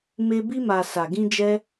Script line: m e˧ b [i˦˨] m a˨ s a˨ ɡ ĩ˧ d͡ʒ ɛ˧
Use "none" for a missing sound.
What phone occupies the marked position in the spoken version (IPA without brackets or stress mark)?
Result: i˧